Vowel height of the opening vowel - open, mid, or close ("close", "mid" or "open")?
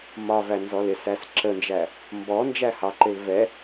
open